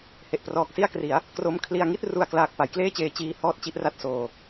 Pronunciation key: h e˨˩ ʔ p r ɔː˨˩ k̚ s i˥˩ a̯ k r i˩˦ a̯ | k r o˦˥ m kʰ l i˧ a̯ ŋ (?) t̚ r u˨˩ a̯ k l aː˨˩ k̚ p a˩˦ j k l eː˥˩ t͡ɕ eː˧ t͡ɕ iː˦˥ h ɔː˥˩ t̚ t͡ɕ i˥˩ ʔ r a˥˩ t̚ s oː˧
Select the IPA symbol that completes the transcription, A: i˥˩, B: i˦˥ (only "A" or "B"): A